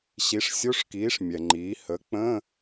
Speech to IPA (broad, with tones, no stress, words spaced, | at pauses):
ɕi˩˥ʂ sʲo˧˥˧ʂkiː˩˥ʂ mʲɛ˩ŋ͡ǃiː˩˥ hə˩˥k͡pə̃˧˥˧